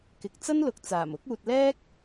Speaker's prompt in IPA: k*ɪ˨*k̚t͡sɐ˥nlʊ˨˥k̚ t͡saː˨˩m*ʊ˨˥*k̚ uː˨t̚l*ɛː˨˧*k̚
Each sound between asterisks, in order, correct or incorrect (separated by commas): correct, correct, incorrect